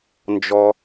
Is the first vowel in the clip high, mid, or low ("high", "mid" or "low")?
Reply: mid